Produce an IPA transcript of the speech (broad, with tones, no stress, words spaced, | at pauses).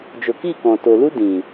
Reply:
d͡ʒo˨ki˦˨kɔ̃˨ to˨lu˦ dĩ˨